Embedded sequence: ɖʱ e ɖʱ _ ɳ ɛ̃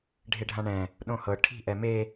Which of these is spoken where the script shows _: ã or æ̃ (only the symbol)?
ã